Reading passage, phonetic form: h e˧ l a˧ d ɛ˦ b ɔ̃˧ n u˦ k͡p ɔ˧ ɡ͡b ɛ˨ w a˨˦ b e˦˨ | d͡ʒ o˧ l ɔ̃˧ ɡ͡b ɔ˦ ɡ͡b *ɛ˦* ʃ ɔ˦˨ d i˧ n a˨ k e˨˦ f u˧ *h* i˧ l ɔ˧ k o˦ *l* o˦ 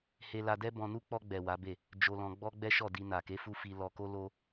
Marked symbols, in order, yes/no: yes, no, yes

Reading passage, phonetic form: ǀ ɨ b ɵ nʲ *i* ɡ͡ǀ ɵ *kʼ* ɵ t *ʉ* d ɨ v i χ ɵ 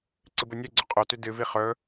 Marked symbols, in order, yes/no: no, no, yes

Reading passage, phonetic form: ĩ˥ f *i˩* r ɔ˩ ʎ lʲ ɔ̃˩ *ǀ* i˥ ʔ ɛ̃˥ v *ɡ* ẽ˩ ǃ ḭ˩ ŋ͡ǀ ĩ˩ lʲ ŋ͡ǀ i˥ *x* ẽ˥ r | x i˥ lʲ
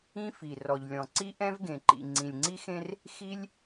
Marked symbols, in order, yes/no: yes, yes, yes, yes

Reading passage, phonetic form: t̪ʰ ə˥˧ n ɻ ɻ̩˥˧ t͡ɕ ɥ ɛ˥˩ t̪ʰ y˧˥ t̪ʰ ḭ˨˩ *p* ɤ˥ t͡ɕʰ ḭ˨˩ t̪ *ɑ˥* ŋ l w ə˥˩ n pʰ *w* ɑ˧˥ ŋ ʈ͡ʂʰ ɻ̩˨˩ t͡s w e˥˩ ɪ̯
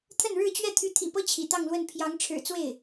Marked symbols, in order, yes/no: yes, no, no

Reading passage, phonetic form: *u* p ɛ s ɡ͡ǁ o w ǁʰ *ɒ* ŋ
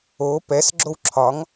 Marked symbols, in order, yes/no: no, yes

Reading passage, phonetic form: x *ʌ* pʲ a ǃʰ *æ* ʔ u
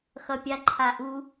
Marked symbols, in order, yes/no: yes, no

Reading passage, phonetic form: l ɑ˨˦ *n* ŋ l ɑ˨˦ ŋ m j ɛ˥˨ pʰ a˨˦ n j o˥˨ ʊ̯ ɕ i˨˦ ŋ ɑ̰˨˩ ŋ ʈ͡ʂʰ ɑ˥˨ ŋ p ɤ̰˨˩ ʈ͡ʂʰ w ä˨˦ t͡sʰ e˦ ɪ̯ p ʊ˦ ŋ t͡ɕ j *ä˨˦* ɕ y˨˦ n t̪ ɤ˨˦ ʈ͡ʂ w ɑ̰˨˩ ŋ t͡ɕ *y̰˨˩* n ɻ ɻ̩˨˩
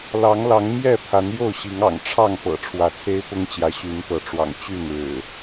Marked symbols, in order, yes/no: no, yes, no

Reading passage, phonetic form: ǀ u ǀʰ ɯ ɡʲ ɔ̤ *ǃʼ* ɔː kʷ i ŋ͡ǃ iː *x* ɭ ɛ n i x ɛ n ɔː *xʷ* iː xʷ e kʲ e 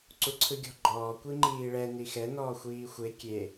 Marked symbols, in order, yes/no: no, no, yes

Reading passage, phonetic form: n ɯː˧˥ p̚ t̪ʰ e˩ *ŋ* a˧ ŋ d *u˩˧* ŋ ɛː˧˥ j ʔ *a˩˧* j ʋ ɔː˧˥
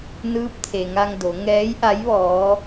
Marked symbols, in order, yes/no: yes, no, no

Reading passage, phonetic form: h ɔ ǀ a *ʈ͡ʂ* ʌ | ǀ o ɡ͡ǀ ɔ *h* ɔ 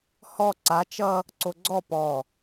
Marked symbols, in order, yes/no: no, no

